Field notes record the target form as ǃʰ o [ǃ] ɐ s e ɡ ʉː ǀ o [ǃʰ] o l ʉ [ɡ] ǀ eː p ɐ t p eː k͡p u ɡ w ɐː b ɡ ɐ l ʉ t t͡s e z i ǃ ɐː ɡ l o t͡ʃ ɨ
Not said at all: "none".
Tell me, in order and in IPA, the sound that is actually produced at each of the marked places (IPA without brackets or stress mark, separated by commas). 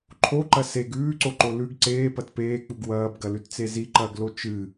ǃ, ǃ, ɡ